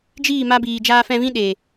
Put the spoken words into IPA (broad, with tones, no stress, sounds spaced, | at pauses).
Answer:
d͡ʒ iː˦˨ m a˧ b iː˨ d͡ʒ aː˧ f ɛ̃˧ v ĩ˦ ɗ e˨